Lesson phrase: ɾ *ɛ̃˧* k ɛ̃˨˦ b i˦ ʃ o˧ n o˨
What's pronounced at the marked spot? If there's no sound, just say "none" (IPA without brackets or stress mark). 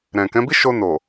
ɛ̃˨